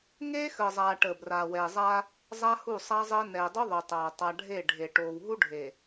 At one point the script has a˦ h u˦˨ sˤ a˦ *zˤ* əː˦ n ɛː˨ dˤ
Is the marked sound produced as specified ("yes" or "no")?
yes